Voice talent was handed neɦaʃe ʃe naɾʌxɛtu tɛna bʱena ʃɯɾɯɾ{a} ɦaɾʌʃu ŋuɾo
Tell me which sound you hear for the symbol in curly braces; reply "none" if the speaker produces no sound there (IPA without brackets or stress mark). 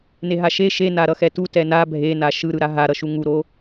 a